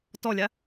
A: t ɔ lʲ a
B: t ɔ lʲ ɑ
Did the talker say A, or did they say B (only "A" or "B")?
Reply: A